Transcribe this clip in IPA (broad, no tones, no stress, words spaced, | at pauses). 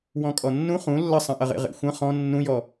wɔ̃kʼɔnːũ χũ lːɐsˤɐ̃ʔɐʁḛ ʁḛxʷɐ̃ χɔ̃ nːũjɔ